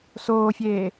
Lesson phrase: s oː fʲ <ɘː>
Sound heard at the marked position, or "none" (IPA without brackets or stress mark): eː